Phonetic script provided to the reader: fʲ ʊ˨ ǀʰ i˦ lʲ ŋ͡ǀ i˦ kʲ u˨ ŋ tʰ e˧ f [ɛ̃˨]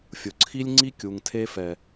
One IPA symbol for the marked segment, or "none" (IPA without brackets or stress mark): ɛ˨